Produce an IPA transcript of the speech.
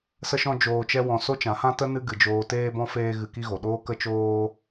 sə˦ʃɔ̃˦d͡ʒoː˧t͡ʃɛ˦ wɔ̃˧ so˦t͡ʃã˨˦hã˦ tə˦ nɨ˦ ɡɨ˨d͡ʒoː˧teː˦bɔ̃˦ feː˦ɣɨ˧ki˦ɣo˨ ɗoː˦kə˦t͡ʃoː˦

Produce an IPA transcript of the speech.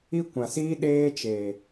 i˦kʷã˨siː˦ ɗeː˦t͡ʃeː˨

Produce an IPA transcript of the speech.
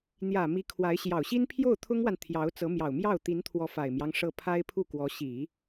n̪jä˨˩ mi˧˥ kʰwa˧˥ɪ̯ ɕjɑ˨˩ʊ̯ɕi˥n pʰjo˥˩ʊ̯t̪ʰʊ˥ŋwa˨n t̪ʰjɑ˧˥ʊ̯t͡sɤ˧˥ mjɑ˨˩ʊ̯mjɑ˥˩ʊ̯ t̪i˧˥nt̪ʰwɔ˧˥ fa˨˩ɪ̯mjɑ˦ŋ ʂɤ˥˩ pʰa˥ɪ̯pʰu˥˩ kwɔ˧˥ ɕi˨˩˦

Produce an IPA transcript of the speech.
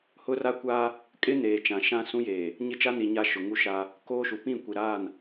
hʊ˦ra˦kʷa˦ | kʼɪ˦ neː˨ t͡ʃã˨ ʃã˦ sũ˦jeː˨ | ɲɪ˦t͡ʃa˦ni˨ ɲa˦ʃʊ˨ŋu˦ʃa˦ | koː˦ʃu˨ pĩ˦˨kʷi˨ɾa˦˨n

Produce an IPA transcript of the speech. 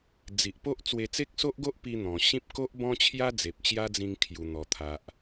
d͡zi˨ʔpo˦ʔ t͡swe˧t͡se˦k̚so˦ʔɡo˦ʔ pi˧ n̪ɔ̃˨˩ ɕĩ˦p̚ ko˦ʔbɔ̃˦t͡ɕʰja˦ d͡ze˨p̚t͡ɕja˦d͡zĩ˧ŋ kʰju˨˩n̪ɔ˨˩t̪ʰa˨ʔ

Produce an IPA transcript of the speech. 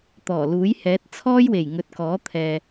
t̪ɔː˨˩luː˨˥j hɛː˨˥t̚ t͡sʰɔː˥jwe˨˩j ŋɵ˨˥t̚kɔː˨˥t̪ʰɛː˨

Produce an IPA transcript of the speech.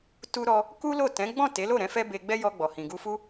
tu˧ɾɔ˧ | ku˦lo˦˨ tɛ̃˨˦ ɡ͡bɔ̃˦˨te˨˦lo˦˨ɾɛ̃˧ fɛ˦be˧ ɡ͡bɛ˦jɔ˧ɡ͡bɔ˨ hĩ˨ɡu˧fu˦

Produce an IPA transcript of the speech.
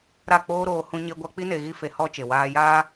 ɾa˦˨k͡poː˦ɾoː˧ hũ˧ɲe˧ɡʷa˧k͡pi˦ ne˧ɣi˦fe˧ hɔ˦ t͡ʃe˨waː˧ jaː˦

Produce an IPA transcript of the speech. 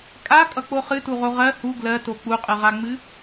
kʼakʼʌk͡po χɨtuʁo ʁɜ hu ɡlɜto k͡puqʼɨʁaŋ͡mɨ

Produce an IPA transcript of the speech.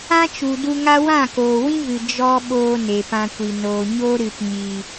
ã˦t͡ʃu˨ du˧ŋa˦ wã˦˨koː˨wĩ˦vɨ˨ d͡ʒɔ˧ ɓoː˦ne˨pã˧kʷi˨ noː˨ ɲo˦ɾɨ˨pɲi˨

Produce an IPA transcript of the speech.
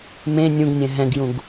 mẽ nʲũɡnʲɛ̃ ɦɛ̃ɡjũɡ

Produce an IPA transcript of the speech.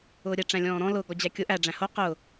ʊːɾʲɛ ʈ͡ʂæ̃lʲɔ̃ːɾɔ̃ lʊ ɡɔd͡ʑækʲʊ ʔæ ɖ͡ʐæ̃ho qʊ

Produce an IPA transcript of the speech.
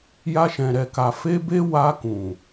ja˧ʃɛ̃˨ ɾɛ˨ka˨ fe˧ be˦ wa˧kũ˨

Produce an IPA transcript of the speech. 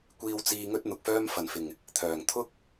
kʷiː˧wt͡siː˧ ŋɵ˥t̚n̪ʊ˨k̚fœː˥m fɐ˨˩nfɪ˨˩ŋ | t̪ʰœː˨˩ŋt̪ʰʊ˥k̚

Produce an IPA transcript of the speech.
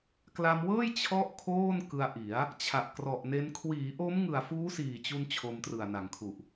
kla˧mwɤː˥˩j t͡ɕʰɔ˥˩ʔkʰoː˥˩nkɯ˧a̯ʔi˩˦a̯ | t͡ɕʰa˨˩ʔkrɔ˨˩ʔne˦˥n kʰwiː˩˦ʔo˦˥mŋɯ˨˩a̯ fuː˦˥siː˨˩t͡ɕu˧n t͡ɕʰo˧mtrɯ˨˩a̯na˩˦ŋkʰu˨˩ʔ

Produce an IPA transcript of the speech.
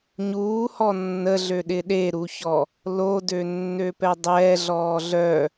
ɲuːhɔ nːəɮøɗɪ ɗeɾuçɔ | lodø nːøpɛdˤɛː ɮɔːɮœ

